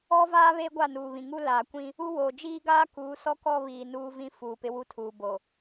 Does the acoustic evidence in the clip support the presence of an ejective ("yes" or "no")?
no